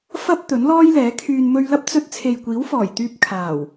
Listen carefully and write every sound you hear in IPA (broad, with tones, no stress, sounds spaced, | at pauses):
f ɐ˥ p̚ t̪ ɵ˨˥ n l ɔː˥ j l ɛː˨˥ kʰ yː˧ n m ɵ˧ ɥ l ɐ˥ p̚ t͡s ɵ˧ t̚ t͡sʰ e˨ j kʷ iː˨˥ w f ɔː˨˩ j t̪ yː˧ p̚ kʰ aː˨˩ w